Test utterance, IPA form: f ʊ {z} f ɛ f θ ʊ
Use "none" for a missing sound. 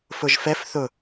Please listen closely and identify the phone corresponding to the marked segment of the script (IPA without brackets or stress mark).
ʒ